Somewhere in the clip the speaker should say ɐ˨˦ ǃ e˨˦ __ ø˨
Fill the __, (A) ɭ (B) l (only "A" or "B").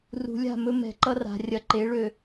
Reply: A